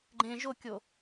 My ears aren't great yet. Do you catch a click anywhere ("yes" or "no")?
yes